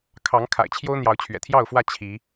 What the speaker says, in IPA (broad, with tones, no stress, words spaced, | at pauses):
kʰɑ˨˦ŋkʰa̰˨˩ɪ̯ t͡ɕʰjo˦ʊ̯ n̪jɑ˨˦ʊ̯t͡ɕʰɥɛ̰˨˩t̪ʰjɑ˥˨ʊ̯fwä˥˨ t͡ɕʰi˨˦